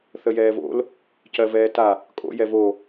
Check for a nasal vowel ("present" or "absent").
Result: absent